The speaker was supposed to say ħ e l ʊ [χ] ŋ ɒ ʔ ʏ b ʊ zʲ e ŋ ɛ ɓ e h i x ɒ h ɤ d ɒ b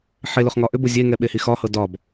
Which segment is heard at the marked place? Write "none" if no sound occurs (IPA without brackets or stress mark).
χ